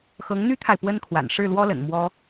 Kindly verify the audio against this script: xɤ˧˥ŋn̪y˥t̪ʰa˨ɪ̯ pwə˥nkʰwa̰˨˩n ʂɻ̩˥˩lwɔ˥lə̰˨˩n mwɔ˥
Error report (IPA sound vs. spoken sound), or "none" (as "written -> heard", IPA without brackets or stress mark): none